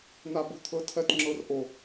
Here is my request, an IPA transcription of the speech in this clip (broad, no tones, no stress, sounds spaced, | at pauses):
n̪ a b u t̪ʰ ɤ tʰ ɜ t ŋ͡ǁ ɤ r ʔ o